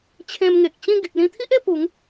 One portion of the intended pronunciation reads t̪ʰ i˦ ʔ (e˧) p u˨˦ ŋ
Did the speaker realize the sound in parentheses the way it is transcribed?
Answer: yes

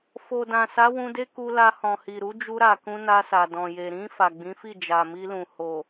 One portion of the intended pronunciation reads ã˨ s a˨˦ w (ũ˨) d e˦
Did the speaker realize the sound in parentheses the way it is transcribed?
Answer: no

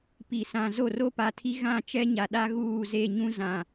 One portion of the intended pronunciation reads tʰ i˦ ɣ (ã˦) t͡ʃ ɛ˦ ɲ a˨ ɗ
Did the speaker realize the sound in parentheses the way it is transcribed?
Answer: no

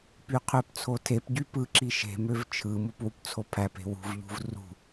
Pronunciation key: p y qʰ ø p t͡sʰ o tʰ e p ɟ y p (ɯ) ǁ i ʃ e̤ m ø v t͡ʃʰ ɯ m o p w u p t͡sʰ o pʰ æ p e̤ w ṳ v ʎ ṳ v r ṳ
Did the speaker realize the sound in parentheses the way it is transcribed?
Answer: yes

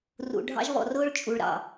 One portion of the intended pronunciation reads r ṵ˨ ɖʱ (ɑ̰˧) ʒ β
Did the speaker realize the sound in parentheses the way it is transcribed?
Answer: yes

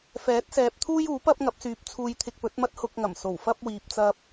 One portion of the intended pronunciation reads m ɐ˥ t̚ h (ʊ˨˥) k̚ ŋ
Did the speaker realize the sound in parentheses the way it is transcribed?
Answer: no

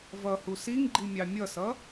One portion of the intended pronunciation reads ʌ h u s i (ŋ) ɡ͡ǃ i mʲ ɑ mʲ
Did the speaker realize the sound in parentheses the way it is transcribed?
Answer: yes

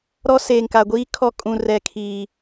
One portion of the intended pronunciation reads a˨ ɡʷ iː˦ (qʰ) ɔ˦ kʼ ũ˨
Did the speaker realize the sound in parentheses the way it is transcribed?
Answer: no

